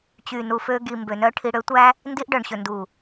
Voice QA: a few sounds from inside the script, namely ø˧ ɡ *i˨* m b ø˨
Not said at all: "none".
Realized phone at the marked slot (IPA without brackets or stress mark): i˨